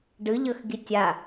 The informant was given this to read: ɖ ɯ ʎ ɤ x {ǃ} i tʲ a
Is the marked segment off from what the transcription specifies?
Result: yes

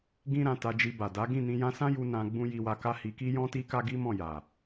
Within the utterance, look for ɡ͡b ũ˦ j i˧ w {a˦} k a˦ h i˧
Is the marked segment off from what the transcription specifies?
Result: yes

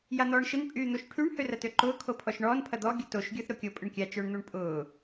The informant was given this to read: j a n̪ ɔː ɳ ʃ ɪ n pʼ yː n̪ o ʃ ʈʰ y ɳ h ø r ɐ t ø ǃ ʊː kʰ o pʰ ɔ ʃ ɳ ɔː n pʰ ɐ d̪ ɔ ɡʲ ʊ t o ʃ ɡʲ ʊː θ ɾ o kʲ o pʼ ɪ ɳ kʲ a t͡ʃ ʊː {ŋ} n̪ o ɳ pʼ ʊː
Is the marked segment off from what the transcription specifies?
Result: yes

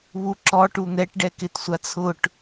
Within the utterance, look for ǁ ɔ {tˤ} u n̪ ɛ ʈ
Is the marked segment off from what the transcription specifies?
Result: yes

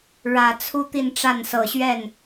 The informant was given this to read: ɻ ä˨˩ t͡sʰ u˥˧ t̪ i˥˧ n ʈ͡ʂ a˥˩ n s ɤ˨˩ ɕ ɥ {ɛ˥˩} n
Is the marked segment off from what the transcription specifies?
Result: no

